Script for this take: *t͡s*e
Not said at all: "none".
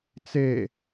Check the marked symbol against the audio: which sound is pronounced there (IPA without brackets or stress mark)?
t͡s